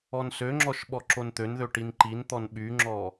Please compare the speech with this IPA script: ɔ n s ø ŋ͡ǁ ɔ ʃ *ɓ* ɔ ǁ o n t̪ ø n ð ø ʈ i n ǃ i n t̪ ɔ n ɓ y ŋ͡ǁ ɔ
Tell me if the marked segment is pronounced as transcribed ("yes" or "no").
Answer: yes